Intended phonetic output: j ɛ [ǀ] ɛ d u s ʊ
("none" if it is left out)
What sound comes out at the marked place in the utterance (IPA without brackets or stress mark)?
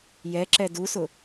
ǁ